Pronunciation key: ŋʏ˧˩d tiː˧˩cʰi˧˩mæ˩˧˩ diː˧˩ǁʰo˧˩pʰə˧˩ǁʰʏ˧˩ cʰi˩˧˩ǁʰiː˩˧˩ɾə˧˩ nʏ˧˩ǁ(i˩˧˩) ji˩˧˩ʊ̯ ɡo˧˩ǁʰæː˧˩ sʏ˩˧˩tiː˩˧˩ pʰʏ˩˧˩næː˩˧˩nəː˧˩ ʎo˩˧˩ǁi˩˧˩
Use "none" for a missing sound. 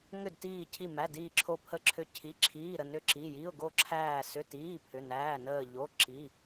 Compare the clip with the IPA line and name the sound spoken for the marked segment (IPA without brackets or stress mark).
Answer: i˩˧˩